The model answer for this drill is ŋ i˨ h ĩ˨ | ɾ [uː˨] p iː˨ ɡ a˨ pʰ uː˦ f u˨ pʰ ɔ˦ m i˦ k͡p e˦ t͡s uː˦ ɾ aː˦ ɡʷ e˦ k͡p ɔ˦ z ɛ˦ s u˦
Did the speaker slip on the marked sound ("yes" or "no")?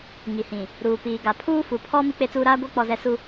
no